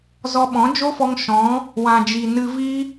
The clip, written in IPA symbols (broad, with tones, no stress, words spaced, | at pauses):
zɔ˧ɓɔ̃˨˦ d͡ʒo˦fɔ˧ŋ ʃɔ̃˨˦ | wã˨d͡ʒi˨ nɨ˧vi˦